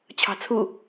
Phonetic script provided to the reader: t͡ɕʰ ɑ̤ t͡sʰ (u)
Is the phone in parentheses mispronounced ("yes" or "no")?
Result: no